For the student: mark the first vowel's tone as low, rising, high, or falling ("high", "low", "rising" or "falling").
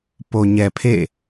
low